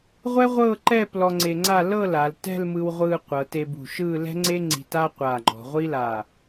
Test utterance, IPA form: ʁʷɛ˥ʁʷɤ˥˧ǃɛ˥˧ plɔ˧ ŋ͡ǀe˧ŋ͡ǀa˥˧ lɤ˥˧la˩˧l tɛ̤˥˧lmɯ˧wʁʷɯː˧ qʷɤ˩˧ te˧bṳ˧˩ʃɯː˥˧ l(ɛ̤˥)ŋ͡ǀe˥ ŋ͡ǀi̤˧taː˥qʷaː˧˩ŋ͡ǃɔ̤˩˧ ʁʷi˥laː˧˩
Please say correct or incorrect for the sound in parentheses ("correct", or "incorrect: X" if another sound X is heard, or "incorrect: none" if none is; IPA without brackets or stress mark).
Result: correct